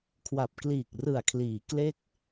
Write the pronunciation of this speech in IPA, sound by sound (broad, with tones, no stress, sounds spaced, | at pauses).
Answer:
kʰ w a˨˩ p̚ k l iː˨˩ k̚ r ɯ˨˩ a̯ kʰ l iː˩˦ k l e˦˥ k̚